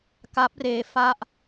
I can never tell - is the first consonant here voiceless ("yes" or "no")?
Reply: yes